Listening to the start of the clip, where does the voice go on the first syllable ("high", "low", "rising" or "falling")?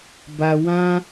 high